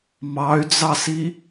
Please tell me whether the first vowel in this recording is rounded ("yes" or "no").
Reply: no